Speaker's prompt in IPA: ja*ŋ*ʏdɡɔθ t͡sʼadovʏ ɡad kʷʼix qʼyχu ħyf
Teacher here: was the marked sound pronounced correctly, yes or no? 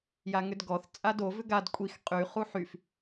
yes